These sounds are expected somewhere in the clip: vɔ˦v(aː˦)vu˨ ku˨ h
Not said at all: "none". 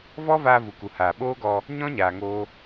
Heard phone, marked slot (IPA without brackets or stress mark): aː˧